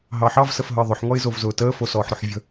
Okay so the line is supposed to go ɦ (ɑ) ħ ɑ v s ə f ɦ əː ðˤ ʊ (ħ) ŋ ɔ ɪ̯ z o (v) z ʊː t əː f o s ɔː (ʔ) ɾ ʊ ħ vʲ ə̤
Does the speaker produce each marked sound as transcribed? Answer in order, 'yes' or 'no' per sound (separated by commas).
yes, yes, yes, no